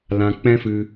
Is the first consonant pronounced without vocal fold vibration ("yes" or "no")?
no